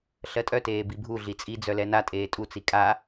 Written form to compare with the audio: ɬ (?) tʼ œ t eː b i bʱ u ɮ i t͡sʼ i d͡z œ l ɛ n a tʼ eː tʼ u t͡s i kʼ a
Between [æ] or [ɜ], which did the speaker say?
ɜ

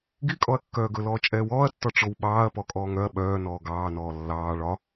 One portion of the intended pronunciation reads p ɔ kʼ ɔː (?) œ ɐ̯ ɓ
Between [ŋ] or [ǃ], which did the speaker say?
ŋ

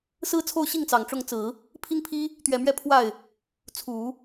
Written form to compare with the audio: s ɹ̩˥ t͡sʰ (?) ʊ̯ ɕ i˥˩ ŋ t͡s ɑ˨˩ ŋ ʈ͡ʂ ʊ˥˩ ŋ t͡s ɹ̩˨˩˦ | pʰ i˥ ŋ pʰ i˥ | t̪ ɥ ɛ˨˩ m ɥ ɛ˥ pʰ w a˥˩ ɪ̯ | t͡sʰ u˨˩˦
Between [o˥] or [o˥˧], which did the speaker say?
o˥˧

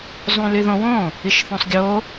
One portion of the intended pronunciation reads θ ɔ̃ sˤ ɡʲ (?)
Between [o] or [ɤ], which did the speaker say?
o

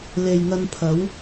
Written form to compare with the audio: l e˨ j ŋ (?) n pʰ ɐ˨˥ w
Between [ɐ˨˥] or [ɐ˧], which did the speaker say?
ɐ˧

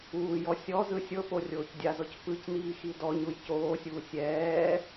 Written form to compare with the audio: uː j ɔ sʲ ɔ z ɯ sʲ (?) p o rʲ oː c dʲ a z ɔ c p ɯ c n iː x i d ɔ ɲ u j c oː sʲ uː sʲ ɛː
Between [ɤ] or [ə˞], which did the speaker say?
ɤ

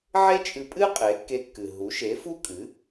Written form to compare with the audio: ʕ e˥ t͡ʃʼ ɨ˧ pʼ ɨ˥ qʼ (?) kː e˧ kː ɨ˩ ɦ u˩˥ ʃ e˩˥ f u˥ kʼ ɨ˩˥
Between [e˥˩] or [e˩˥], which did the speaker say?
e˩˥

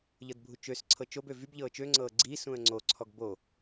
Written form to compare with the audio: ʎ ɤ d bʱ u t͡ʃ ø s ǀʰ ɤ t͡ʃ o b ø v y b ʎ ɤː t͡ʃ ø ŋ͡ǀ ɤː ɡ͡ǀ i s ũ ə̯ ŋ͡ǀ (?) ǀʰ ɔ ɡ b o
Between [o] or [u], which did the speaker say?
o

